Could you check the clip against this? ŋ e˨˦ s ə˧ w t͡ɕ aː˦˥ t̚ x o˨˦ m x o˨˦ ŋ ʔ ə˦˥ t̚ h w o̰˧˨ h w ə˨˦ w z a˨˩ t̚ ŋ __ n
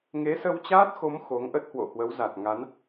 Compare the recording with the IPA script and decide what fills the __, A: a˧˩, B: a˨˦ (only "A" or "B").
B